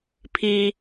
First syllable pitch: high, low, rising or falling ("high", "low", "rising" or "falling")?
low